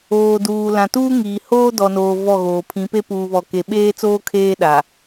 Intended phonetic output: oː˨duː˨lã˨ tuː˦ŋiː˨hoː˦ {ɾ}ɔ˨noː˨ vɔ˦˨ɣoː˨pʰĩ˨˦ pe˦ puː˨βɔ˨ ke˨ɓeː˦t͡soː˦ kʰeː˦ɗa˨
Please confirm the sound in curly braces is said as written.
no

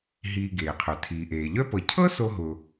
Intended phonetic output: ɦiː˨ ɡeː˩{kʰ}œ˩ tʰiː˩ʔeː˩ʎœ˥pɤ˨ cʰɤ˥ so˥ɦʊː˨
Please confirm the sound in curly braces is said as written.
no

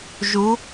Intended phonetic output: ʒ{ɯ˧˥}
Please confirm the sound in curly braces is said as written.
no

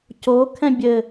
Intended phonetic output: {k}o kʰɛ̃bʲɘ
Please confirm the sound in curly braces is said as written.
no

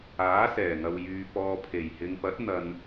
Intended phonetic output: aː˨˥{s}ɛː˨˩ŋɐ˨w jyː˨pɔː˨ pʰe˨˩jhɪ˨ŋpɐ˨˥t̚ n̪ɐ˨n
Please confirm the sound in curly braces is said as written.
yes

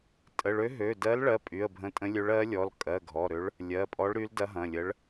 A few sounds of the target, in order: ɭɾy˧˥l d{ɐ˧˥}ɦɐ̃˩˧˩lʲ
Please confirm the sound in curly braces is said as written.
yes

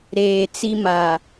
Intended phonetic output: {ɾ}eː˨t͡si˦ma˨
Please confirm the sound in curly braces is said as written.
yes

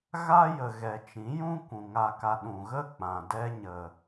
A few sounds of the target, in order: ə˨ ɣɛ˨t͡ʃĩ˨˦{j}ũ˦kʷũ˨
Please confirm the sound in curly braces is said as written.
yes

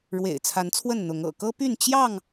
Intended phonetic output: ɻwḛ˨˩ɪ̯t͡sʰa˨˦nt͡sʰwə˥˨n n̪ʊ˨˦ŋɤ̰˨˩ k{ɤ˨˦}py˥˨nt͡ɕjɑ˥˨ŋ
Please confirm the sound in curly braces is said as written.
no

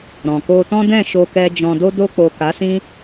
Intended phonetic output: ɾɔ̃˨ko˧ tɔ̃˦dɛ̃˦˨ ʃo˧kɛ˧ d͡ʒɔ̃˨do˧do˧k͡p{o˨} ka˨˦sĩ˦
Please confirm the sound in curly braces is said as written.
yes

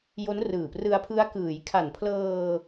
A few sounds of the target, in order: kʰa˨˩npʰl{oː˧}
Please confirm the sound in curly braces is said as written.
no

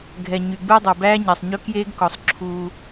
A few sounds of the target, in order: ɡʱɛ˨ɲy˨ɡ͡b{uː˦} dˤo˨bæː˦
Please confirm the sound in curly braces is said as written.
yes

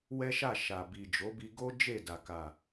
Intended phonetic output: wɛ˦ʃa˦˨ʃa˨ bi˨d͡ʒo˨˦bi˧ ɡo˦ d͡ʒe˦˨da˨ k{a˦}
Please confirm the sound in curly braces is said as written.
no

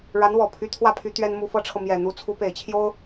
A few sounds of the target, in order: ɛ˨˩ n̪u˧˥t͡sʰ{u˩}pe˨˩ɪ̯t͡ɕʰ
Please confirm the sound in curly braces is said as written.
no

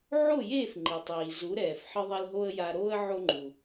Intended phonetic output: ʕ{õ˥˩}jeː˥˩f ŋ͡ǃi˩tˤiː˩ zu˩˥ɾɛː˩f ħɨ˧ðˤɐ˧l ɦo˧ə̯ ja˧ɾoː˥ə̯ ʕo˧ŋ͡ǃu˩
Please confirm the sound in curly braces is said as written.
no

